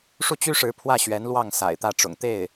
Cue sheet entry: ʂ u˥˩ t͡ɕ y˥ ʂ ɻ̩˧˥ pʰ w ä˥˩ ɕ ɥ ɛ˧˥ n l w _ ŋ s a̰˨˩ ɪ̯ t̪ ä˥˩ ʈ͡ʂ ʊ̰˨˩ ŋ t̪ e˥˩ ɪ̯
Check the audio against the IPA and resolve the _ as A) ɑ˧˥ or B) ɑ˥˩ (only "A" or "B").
B